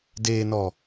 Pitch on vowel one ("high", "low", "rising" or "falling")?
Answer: low